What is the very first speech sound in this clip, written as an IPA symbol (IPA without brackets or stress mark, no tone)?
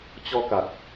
t͡ɕ